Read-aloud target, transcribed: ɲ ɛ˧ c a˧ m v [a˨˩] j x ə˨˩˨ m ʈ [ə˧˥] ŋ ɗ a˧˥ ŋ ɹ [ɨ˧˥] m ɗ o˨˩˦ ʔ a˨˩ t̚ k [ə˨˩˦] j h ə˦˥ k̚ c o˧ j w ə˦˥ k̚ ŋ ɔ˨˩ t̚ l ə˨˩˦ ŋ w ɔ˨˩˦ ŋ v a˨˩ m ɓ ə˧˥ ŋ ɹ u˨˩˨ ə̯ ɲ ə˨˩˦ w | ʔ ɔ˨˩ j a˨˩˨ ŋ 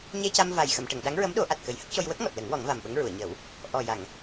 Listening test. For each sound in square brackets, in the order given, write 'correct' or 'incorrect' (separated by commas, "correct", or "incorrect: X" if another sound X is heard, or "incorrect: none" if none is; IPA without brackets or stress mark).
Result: correct, incorrect: ə˨˩˨, incorrect: ə˧˥, correct